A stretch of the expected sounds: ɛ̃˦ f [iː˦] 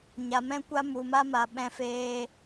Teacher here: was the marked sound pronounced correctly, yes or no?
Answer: no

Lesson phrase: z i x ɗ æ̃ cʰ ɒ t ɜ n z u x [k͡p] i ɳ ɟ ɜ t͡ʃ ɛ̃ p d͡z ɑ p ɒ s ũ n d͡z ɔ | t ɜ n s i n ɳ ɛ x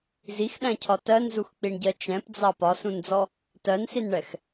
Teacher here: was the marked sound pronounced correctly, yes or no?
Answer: yes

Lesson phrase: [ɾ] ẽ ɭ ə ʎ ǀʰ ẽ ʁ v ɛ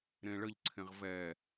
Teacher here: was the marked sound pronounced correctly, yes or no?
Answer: yes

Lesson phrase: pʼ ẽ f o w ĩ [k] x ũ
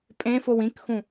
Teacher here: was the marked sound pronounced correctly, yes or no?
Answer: yes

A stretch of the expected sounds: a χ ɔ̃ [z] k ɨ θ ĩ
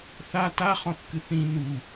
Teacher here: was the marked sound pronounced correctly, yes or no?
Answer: no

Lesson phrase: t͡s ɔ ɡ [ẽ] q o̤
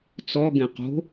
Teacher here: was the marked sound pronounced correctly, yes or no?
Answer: yes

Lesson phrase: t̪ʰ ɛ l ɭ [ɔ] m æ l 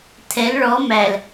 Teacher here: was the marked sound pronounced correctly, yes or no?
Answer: yes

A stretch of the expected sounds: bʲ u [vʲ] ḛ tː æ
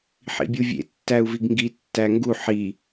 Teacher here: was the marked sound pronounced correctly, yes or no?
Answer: yes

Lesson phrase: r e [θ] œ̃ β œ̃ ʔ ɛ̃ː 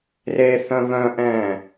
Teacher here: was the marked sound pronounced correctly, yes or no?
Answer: yes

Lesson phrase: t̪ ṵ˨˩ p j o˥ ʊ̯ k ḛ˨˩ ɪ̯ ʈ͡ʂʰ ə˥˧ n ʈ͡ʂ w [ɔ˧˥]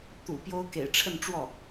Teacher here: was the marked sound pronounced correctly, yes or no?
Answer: no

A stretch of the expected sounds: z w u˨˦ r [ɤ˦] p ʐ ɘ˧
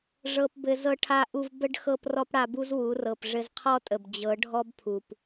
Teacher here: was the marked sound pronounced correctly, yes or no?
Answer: no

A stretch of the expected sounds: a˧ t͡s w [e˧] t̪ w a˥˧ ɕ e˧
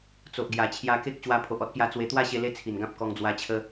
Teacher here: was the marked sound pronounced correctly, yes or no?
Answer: yes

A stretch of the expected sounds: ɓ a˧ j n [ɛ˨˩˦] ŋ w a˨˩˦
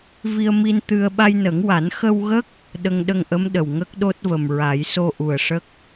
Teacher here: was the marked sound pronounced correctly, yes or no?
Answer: no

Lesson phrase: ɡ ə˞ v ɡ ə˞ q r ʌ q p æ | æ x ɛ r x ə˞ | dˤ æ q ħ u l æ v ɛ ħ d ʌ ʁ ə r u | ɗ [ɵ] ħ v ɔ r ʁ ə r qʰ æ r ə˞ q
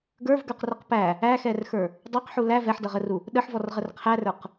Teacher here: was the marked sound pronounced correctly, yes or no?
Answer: no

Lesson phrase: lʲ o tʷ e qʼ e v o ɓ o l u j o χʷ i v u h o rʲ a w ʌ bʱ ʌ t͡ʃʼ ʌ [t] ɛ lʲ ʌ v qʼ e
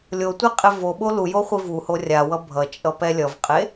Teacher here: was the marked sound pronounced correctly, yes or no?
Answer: no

